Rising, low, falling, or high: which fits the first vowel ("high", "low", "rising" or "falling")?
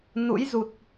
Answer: rising